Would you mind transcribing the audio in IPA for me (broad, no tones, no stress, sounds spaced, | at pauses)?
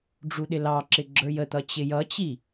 ɖ͡ʐ u ɗ ɪ l ɑ ǁ ɪ ɡ͡ǁ ə˞ j ə t̪ ʌ t͡ɕ ɪ j ʌ t͡ɕ i